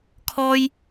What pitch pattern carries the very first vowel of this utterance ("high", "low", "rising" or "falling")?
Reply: high